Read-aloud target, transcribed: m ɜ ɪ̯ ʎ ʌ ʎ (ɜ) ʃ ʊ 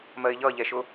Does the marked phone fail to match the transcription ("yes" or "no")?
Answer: yes